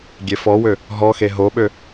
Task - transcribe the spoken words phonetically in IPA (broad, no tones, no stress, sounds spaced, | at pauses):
ɡʲ e f ɔ w ø | ɦ ɔ x e ɦ o ɓ ø